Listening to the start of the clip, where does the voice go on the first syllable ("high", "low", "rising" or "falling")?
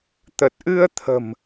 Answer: low